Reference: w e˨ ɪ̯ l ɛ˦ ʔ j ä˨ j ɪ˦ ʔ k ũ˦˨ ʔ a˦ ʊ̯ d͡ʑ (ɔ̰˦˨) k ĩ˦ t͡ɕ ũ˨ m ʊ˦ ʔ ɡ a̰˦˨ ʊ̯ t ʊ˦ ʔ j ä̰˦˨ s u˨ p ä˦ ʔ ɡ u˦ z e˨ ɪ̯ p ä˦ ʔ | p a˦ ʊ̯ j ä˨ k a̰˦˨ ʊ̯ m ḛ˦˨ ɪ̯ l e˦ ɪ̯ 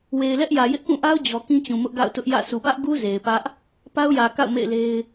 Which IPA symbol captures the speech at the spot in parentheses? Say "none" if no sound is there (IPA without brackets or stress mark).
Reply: ɔ˨